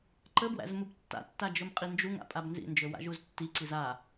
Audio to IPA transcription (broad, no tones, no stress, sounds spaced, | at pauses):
ǃ ə b w æ̰ z m u b tː a̰ tː a d͡ʒ ɵ m qʼ i n d͡ʒ u ŋ a̰ pʼ a b n z ḭ n d͡ʒ ɵ w a̰ ʒ u z tː i ǀ i z a